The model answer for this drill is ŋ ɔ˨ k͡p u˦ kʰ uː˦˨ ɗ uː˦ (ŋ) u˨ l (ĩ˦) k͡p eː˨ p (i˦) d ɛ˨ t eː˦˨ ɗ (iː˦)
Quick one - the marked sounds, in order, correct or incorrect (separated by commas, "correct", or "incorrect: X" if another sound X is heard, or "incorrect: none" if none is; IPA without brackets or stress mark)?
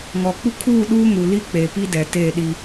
correct, incorrect: i˦, correct, incorrect: i˦